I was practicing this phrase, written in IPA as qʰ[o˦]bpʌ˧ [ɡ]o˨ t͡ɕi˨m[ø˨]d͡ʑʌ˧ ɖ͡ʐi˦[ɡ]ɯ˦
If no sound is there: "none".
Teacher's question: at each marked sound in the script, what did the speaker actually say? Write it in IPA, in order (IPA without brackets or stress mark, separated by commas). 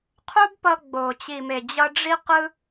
u˦, ɡ͡b, e˨, q